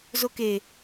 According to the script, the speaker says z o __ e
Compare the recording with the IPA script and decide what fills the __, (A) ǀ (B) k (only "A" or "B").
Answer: B